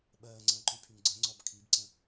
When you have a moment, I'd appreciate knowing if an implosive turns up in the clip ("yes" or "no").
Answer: yes